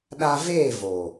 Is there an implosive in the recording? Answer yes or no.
yes